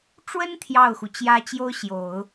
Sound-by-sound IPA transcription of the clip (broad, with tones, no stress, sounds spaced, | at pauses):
ʈ͡ʂ w ə˥ n t̪ʰ j ɑ˥˩ ʊ̯ x u˩ t͡ɕ j ä˥ t͡ɕ j o˥ ʊ̯ ɕ j o˨˩˦ ʊ̯